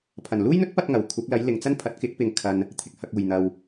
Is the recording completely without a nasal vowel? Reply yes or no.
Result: yes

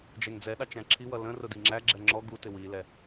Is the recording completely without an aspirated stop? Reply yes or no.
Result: no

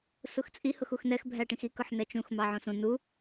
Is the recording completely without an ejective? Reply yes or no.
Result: no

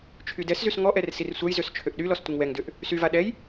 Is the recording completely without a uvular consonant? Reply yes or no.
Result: yes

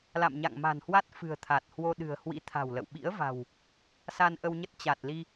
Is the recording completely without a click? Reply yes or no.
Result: yes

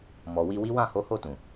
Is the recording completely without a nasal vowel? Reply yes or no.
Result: no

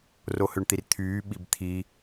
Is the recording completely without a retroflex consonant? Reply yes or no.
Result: no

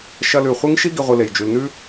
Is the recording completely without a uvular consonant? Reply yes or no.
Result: no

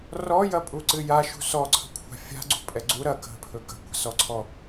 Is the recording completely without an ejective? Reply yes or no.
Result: no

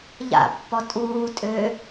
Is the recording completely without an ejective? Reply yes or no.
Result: no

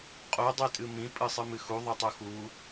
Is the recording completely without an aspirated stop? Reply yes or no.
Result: yes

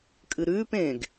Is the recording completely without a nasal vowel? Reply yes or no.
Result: no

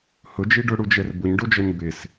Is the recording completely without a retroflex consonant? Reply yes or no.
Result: no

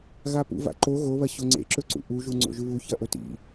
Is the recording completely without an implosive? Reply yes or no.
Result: yes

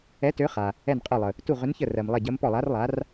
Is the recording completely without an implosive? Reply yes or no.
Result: yes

